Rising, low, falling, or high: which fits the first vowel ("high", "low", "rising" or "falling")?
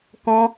high